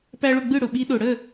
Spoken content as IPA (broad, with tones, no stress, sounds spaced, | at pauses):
p æ˦ ɭ ʊ˥˩ ɡ͡b ɯ˥˩ ɽ ʊ˩ ɓ i˨˥ ɗ ʊ˩ ɽ ə˥˩